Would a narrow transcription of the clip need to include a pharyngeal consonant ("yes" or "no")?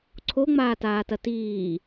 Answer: no